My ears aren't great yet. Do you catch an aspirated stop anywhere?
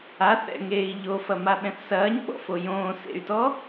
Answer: no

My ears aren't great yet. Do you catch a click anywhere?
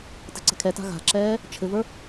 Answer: yes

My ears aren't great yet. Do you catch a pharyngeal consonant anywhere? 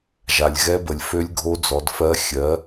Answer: no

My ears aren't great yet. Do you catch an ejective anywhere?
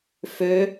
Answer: no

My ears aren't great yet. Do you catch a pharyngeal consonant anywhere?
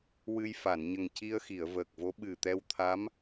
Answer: no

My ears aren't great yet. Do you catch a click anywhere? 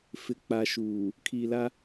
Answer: no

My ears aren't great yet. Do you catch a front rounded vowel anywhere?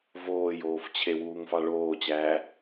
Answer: no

